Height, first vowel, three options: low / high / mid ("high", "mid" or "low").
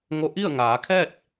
mid